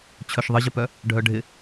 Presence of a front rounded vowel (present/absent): present